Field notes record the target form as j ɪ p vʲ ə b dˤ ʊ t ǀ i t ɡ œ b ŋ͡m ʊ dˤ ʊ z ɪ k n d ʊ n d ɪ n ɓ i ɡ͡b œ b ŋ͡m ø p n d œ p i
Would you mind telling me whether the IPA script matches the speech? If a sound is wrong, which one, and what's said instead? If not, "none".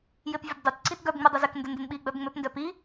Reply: none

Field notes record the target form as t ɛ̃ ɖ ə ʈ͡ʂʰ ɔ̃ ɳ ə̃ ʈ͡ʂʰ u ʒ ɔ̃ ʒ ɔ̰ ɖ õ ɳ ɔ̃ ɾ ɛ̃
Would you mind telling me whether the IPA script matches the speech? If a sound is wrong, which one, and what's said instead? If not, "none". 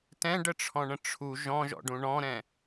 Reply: õ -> ũ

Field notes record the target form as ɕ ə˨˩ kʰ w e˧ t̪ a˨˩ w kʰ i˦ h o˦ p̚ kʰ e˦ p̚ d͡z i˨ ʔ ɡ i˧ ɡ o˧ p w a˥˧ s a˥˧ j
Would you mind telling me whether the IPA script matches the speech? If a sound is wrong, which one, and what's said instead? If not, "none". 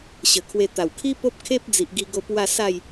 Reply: h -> p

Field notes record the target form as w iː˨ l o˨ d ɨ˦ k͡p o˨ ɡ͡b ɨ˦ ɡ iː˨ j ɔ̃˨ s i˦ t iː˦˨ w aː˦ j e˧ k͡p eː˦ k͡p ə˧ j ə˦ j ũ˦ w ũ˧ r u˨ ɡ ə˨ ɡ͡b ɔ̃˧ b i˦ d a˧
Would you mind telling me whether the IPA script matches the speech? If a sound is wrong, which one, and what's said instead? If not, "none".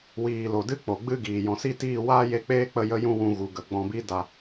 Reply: r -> ɣ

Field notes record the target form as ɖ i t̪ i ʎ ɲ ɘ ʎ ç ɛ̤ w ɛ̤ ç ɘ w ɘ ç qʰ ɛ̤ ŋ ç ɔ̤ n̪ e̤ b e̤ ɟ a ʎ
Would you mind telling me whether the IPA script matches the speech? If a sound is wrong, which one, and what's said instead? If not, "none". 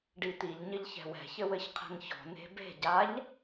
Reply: none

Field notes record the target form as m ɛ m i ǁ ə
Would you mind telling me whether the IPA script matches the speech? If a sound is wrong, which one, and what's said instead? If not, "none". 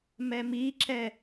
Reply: ə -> ɛ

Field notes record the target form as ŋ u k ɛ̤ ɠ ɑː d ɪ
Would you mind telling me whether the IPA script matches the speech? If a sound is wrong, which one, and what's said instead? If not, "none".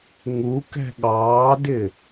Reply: none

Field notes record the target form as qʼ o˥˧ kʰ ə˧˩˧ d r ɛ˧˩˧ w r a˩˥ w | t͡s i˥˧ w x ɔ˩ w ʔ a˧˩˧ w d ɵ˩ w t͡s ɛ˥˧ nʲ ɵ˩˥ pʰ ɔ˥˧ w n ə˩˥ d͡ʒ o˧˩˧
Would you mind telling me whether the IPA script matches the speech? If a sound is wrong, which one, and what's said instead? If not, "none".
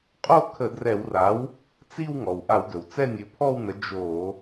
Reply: x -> ŋ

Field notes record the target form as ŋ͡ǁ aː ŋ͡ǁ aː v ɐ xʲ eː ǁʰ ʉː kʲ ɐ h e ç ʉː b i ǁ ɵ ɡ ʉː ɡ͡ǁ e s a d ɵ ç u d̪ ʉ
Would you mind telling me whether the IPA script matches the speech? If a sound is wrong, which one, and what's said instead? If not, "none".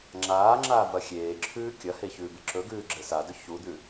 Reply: none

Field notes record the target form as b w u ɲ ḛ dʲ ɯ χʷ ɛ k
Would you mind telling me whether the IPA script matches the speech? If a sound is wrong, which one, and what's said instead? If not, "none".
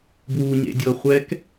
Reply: ɯ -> ɤ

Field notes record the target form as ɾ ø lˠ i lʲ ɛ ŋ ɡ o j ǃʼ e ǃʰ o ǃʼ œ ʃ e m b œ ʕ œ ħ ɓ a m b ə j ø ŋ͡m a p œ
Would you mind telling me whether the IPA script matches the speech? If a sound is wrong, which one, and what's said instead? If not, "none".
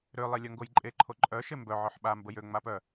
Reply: ɛ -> œ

